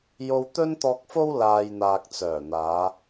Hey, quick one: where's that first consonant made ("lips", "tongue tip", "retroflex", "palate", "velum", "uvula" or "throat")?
palate